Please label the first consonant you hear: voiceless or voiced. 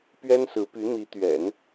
voiceless